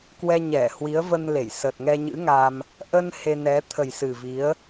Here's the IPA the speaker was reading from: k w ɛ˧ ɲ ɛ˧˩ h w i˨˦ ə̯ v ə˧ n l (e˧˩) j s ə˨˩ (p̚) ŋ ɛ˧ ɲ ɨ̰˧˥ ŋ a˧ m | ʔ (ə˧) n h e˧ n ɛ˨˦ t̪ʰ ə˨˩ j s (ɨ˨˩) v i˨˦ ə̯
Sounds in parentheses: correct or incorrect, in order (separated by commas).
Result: correct, incorrect, correct, correct